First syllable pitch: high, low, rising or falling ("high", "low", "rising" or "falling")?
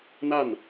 falling